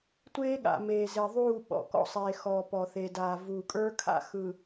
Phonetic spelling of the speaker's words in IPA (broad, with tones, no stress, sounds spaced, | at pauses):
tʷ eː˦ ɠ a̰˨ m eː˨ z e˨ ðˤ uː˦˨ ɓ ɔ̰˨ k ɔ̰˦ sˤ eː˨ x ɔː˨ p ɔ˨ θ e˨ d aː˨ v uː˨ kʼ ə˞˦ kʰ a̰˦ x ɯ˨